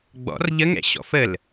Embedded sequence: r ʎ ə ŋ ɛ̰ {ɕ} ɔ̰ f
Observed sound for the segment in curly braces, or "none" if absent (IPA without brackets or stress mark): ɕ